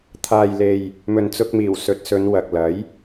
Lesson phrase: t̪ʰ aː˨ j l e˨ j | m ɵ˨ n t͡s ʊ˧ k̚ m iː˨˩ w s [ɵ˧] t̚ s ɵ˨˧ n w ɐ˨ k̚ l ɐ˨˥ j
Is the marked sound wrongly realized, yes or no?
yes